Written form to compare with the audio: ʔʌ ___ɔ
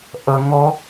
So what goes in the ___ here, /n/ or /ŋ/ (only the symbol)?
ŋ